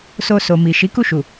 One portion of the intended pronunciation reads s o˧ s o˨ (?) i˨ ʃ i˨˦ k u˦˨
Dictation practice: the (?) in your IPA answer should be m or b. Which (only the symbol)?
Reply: m